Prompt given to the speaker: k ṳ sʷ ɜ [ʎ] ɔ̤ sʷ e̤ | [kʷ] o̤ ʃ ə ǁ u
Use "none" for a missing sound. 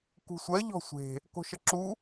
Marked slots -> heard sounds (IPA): ʎ, k

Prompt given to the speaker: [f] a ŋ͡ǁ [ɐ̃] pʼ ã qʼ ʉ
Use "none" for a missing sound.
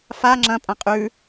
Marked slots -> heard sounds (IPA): f, ɐ̃

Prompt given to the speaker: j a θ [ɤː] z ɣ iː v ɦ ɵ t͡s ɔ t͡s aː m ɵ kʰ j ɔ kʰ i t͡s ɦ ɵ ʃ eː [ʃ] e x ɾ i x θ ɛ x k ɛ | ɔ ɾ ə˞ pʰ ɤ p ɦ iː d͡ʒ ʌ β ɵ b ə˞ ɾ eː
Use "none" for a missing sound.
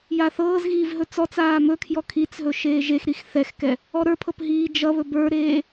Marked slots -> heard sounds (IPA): ɤː, ʒ

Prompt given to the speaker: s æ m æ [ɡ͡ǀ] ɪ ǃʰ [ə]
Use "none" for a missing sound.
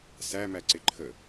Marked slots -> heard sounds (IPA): ǀ, ə

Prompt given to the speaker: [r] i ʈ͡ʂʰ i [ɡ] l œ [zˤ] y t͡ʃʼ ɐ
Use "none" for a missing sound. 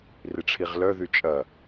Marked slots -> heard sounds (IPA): r, ʁ, ð

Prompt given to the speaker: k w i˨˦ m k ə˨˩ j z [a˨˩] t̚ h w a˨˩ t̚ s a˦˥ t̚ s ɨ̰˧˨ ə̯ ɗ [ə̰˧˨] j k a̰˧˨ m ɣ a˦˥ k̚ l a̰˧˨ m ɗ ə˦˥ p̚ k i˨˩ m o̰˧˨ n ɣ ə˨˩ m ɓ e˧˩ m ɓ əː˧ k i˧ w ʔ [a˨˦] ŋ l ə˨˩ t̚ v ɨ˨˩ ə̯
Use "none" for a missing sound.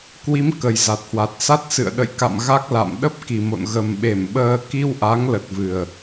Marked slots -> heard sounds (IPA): a˨˩, ə̰˧˨, a˨˦

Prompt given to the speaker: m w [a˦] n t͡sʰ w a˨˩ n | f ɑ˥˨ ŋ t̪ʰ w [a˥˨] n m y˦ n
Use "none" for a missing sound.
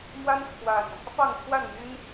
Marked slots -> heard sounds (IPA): a˦, a˥˨

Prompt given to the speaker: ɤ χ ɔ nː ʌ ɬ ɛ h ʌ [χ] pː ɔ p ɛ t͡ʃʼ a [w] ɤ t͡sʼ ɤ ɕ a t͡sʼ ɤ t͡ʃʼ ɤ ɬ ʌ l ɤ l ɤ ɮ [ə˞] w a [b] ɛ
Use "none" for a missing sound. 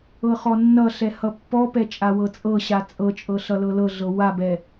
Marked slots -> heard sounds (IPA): none, w, ɤ, b

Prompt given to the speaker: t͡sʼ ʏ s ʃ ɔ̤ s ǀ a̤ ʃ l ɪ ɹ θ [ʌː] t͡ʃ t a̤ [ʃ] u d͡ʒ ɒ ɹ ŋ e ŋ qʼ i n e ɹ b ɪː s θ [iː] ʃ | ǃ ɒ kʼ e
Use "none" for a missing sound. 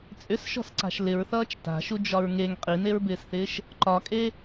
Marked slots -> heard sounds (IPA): ʌː, ʃ, ɪː

